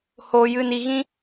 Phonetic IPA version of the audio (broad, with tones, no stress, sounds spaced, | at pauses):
h oː˨ j ɨ˨ n i˨ ɣ ĩ˧